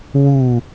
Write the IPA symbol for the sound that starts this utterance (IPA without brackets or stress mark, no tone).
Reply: w